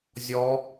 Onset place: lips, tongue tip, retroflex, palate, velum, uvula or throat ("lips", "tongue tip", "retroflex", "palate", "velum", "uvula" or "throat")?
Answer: tongue tip